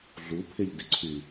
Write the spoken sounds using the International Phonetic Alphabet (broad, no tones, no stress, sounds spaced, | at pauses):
ɮ u pʰ ɪ ʎ d ɪ ǀʰ y